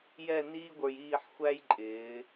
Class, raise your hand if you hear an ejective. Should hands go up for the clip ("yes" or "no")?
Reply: yes